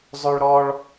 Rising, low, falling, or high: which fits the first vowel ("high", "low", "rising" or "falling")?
high